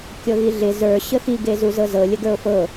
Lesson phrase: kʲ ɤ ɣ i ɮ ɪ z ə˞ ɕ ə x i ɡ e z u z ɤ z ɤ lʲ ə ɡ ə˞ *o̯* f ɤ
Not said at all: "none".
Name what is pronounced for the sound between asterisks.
o̯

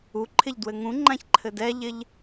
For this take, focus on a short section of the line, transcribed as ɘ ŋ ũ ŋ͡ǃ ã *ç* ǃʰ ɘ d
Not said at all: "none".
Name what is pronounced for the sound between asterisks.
ç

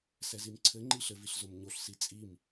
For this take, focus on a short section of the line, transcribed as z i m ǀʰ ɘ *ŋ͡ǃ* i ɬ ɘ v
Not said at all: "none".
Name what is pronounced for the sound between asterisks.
ŋ͡ǃ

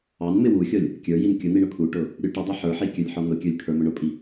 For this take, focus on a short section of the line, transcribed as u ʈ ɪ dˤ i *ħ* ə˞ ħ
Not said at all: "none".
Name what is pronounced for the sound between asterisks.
ħ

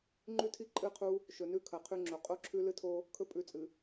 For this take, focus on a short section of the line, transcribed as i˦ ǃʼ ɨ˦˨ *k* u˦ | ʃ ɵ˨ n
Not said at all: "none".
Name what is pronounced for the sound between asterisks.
qʰ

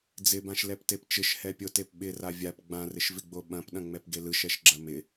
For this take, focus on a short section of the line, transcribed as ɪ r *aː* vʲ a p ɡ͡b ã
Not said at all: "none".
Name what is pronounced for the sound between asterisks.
a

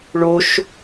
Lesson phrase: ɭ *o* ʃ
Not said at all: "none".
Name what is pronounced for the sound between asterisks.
o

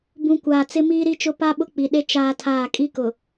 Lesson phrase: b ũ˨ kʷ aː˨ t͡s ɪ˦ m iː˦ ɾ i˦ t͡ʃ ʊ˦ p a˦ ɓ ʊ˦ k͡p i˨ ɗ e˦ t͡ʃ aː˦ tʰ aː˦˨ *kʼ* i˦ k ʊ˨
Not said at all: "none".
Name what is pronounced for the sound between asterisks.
kʼ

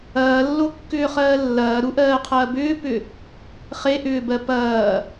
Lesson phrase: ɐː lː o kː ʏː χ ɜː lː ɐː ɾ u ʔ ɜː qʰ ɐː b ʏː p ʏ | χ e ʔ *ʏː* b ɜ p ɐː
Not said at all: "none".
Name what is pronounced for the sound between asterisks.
ʏː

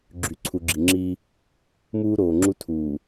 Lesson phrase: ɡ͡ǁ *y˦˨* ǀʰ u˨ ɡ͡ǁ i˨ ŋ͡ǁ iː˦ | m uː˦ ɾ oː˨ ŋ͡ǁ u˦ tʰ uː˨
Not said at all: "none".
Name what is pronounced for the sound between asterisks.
y˨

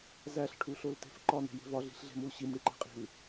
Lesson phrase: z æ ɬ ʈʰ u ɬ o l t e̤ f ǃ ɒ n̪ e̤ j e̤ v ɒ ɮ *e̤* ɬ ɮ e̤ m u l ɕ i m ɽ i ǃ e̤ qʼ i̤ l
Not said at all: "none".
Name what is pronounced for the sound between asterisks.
i̤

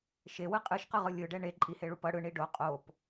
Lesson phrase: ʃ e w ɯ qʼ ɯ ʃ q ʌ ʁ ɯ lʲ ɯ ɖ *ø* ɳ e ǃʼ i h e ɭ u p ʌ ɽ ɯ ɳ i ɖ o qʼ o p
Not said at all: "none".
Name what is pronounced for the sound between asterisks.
ɛ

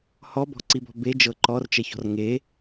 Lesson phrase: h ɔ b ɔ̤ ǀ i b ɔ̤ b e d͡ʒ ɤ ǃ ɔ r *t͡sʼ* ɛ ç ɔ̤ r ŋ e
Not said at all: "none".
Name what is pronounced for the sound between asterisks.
t͡ʃ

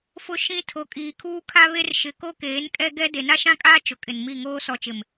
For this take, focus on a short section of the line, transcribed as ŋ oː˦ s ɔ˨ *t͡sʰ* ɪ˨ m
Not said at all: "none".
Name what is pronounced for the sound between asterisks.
t͡ʃ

